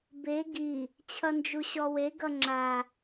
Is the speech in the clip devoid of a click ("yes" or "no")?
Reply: no